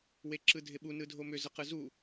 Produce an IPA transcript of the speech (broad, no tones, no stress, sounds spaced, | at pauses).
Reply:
w e ǁ ɯ dʱ ɪ ɓ u n ɯ dʱ o m ʏ z ə q ɯ z u